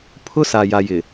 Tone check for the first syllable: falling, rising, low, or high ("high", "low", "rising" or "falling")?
high